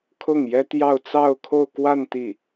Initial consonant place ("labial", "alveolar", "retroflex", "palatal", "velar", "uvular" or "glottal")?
velar